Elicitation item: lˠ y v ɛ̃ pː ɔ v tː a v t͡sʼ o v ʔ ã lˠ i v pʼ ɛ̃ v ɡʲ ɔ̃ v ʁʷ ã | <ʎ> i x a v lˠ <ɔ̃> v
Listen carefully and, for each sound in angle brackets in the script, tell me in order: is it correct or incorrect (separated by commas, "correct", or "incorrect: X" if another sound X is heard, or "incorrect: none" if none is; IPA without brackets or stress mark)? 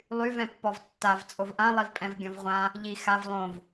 correct, incorrect: õ